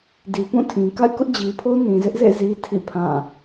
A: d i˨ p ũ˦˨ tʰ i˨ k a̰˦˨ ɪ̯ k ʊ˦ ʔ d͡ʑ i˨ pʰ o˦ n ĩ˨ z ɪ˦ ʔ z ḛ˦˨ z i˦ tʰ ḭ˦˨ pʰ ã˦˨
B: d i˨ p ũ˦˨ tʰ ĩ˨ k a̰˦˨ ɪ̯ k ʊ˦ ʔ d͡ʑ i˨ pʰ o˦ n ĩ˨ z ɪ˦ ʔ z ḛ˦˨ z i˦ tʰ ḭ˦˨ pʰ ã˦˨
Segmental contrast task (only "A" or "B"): B